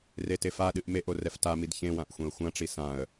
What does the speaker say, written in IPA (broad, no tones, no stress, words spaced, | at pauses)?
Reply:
retefaɗɨʔ meʔo rɛftamid çẽwãʔ xʷẽə̯xʷãʈ͡ʂi sãə̯